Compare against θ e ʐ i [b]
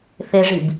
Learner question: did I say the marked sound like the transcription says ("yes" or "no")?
yes